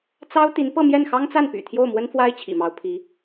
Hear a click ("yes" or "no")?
no